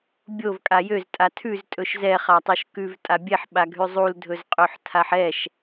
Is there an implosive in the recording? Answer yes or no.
yes